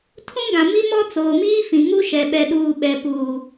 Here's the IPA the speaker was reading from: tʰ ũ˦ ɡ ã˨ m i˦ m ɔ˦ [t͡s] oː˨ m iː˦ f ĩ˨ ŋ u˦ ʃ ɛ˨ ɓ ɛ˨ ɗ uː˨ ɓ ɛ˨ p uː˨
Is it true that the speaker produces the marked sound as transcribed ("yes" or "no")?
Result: yes